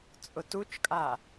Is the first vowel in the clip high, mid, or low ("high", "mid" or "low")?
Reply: high